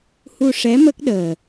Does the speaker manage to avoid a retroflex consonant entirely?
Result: no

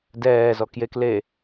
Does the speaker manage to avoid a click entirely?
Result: yes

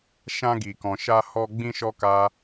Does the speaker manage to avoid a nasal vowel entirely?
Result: no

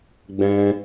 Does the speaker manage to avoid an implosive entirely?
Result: yes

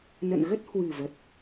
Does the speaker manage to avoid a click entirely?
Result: yes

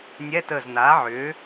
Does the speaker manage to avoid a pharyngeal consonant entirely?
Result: no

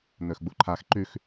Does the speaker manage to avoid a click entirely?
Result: no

